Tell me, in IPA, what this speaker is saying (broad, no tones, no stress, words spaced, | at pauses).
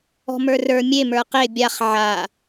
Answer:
ɔ̤mə˞rə˞ mʲe mə˞qe bʲaχ ʕa